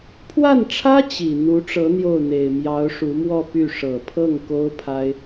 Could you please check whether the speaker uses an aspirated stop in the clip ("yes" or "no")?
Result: yes